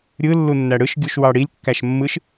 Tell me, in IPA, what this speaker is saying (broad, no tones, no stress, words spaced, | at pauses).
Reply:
ɾʲɯ lːunːæɽɯʃ ɡʲuʃwɑɽilʲ kːæʃmːɯʃ